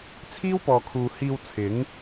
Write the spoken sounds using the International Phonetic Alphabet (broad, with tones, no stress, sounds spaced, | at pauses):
t͡sʰ iː˥ w p ɔː˨ kʰ uː˨ h iː˧ w t͡sʰ ɪ˨˥ ŋ